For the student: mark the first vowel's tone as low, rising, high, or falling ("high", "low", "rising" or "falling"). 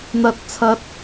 low